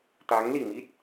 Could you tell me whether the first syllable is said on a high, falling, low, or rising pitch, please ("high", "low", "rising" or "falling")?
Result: rising